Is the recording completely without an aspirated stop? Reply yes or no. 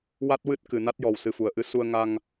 yes